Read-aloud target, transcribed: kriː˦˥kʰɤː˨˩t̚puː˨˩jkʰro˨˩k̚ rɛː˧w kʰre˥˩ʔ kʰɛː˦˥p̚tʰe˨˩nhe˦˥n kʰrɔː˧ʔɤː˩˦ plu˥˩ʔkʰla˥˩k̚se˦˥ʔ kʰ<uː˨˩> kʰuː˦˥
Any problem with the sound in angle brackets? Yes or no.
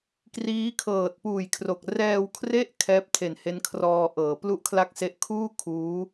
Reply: yes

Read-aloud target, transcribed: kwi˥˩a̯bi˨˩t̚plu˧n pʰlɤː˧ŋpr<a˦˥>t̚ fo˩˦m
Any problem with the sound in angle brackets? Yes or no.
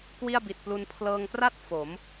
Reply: yes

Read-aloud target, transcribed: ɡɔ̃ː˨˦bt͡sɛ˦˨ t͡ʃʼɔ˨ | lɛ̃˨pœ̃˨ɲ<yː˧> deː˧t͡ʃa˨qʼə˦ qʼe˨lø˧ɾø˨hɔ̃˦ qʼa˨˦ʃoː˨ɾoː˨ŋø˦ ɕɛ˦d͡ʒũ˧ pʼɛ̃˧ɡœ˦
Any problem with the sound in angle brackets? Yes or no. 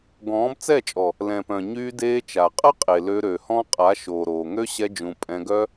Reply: no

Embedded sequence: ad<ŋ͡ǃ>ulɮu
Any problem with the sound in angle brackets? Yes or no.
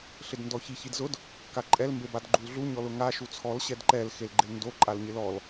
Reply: yes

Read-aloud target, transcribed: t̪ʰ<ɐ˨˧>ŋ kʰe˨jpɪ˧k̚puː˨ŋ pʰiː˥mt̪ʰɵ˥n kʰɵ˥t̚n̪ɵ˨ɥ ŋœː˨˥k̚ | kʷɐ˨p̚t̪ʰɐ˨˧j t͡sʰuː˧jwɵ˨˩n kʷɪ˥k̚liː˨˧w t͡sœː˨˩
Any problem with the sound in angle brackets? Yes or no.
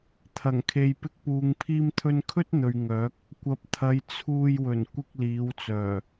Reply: yes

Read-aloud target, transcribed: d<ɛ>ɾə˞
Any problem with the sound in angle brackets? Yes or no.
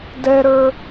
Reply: no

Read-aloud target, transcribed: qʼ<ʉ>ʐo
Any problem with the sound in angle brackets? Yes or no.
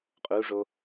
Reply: yes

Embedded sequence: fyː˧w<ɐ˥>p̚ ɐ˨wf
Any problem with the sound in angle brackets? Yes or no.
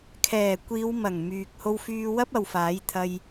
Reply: no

